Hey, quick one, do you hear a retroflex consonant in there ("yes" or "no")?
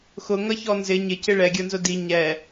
yes